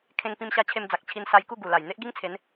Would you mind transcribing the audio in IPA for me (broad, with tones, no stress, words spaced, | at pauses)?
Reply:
kʰẽ˧ŋpĩ˧mɕa˧ t͡ɕʰe˧md͡za˨k̚ t͡ɕʰi˧nsa˧jku˥˧ ɡu˨˩la˨˩j n̪e˦ʔɡi˦ŋt͡sʰe˨˦n